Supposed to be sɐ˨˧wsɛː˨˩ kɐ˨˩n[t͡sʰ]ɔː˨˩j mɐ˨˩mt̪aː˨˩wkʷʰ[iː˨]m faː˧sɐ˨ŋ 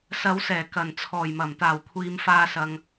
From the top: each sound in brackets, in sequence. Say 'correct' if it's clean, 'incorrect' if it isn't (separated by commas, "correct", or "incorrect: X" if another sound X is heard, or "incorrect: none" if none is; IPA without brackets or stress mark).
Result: correct, correct